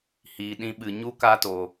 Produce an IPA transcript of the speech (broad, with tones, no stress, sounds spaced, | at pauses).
h iː˨ ɗ ĩ˧ ɓ ɨ˨ ɲ u˦ k aː˦ t o˨